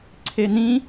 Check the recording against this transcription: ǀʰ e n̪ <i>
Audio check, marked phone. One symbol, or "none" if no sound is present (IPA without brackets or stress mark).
ĩ